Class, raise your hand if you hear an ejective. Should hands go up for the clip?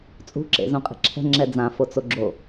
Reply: yes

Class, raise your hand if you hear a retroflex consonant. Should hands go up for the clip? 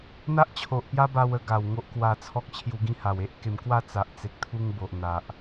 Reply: no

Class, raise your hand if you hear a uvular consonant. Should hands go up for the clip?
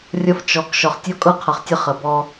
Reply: yes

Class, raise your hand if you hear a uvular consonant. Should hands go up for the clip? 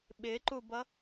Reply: no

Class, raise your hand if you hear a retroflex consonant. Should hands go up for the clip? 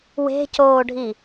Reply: yes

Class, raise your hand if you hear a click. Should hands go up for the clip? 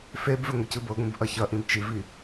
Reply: no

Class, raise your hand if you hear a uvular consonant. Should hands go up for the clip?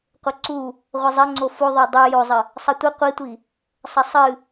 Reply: yes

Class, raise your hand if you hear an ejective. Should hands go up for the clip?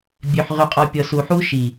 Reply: yes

